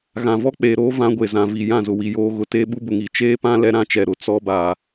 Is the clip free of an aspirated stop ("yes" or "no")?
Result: yes